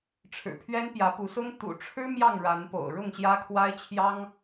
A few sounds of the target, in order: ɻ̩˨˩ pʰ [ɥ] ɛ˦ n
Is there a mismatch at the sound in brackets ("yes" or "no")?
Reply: no